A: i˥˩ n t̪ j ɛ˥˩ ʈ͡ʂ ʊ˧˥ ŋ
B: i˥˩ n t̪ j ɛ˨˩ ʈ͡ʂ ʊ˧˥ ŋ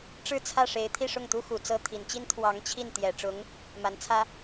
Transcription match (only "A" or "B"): B